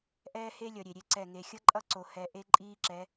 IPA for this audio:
ʔ ɛː˦ h e˦ lʲ ʌ˨ ɾʲ e˨ ɾʲ e˦ ǀ ɛ˦˨ ŋ e˨ xʲ ʌ˦ ǃʼ ʌ˦ ǀ o˨ h ɛ˨ ʔ e˦ ǃʼ iː˦ ǁ ɛ˨˦

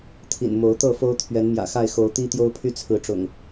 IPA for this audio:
t̪ʰ ḭ˨˩ n m o˨˦ ʊ̯ t̪ ɤ˥˨ f o˦ ʊ̯ t̪ʰ ɥ ɛ˨˦ n m j ä̰˨˩ x a˥˨ ɪ̯ x o˨˦ ʊ̯ t̪ i˦ t̪ j o˦ ʊ̯ pʰ y˦ t͡sʰ ɹ̩˨˦ ʈ͡ʂ ʊ̰˨˩ ŋ

